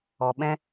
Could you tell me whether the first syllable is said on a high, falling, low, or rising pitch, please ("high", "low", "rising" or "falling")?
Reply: low